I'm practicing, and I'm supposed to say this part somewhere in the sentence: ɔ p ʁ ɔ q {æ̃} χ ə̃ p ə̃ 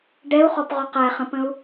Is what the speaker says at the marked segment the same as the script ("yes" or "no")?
no